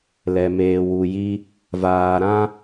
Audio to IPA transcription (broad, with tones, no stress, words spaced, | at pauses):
lɛ˨meː˨wu˨ji˦ | vaː˨ɾã˦